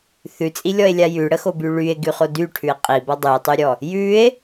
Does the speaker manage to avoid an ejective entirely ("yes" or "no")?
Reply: no